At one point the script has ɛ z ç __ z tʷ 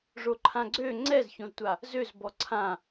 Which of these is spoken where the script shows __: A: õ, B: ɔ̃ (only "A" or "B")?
A